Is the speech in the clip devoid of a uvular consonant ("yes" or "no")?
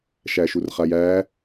no